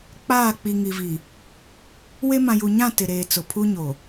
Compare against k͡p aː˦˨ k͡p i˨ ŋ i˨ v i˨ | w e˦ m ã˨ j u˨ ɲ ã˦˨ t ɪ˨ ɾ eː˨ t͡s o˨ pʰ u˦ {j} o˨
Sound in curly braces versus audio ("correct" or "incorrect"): incorrect